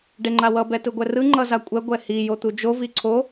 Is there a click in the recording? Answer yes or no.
yes